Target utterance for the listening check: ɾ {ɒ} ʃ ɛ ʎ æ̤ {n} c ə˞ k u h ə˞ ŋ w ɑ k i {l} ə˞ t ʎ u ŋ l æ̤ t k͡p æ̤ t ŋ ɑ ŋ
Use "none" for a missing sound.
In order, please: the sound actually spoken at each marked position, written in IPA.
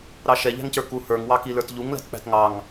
ɑ, ŋ, l

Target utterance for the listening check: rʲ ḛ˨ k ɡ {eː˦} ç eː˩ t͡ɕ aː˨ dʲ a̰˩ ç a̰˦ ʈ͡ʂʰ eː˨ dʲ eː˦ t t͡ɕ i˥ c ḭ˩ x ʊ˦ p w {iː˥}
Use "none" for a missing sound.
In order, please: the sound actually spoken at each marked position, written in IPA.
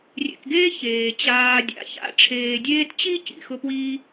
eː˥, iː˥

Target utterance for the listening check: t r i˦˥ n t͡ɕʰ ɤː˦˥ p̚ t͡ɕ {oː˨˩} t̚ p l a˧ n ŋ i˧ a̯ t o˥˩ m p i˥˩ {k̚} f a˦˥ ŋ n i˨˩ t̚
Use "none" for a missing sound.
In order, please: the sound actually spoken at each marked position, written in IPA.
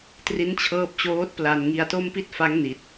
oː˦˥, t̚

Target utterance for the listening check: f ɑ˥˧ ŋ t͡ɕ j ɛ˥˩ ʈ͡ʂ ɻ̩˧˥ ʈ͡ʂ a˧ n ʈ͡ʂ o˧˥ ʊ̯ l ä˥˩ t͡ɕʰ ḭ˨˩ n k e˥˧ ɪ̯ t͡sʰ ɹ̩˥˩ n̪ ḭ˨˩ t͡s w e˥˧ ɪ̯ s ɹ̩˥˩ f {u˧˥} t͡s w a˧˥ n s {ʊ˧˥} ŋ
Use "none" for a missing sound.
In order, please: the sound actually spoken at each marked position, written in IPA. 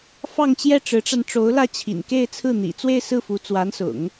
u˧˥, ʊ̰˨˩˦

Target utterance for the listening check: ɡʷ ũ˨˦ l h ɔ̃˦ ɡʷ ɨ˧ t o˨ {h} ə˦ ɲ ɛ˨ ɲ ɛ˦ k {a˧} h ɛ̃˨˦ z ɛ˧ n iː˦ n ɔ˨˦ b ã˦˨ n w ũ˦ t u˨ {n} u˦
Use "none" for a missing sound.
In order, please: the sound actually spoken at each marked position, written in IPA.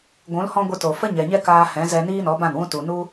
f, aː˧, n

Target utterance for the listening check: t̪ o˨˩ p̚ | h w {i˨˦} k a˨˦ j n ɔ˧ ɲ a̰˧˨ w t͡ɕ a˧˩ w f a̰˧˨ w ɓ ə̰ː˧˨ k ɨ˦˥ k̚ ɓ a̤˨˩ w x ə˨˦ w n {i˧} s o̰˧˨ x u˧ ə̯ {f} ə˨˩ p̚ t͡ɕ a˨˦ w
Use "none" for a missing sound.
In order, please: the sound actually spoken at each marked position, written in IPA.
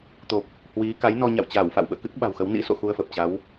i˨˦, ḭ˧˥, f

